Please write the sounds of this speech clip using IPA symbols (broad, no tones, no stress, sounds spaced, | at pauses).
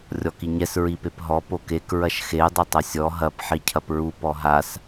rʲ ɔ k i ɲ ɛ s ɹ i p e p ɦ ɔ p o k e k ɹ ɐ ʃ x e dˤ ɘ tˤ ɐ sʲ ɔ ɦ ɐ p ħ i cʰ ɐ p ɹ u p ɔ ɦ a s